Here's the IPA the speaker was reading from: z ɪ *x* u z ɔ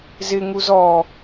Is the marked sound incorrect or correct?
incorrect: ŋ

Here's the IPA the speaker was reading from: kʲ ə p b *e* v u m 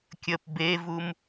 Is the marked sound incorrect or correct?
correct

